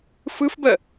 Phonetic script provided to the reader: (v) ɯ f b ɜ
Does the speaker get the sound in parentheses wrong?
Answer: yes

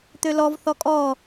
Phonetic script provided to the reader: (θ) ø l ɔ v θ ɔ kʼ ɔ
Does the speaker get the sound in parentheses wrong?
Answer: yes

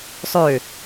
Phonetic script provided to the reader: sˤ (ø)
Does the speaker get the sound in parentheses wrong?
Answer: no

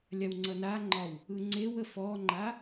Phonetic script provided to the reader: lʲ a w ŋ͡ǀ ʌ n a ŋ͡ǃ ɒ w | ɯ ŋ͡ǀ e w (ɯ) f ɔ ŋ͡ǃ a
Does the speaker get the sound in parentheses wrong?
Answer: yes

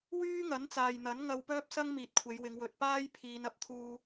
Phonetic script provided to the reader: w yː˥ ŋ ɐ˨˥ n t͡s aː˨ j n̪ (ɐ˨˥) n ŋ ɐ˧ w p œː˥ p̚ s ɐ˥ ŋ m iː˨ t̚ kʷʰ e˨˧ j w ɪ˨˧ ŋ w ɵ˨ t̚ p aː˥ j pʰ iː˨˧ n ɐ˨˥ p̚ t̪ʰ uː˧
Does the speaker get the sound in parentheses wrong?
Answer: no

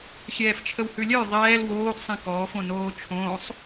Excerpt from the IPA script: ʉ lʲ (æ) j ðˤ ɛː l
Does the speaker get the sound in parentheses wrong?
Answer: yes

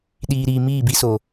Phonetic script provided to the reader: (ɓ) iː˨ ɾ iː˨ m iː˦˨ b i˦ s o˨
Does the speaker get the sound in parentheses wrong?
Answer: yes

